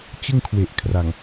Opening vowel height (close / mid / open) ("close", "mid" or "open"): close